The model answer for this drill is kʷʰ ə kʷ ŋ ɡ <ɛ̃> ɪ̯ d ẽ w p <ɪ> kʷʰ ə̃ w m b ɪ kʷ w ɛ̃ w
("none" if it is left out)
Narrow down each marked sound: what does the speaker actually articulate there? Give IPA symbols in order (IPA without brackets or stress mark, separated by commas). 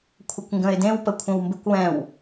ə̃, ə